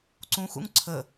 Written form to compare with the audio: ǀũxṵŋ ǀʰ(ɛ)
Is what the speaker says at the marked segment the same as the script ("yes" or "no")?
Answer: no